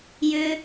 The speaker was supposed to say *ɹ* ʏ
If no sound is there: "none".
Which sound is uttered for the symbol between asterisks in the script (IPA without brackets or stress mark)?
j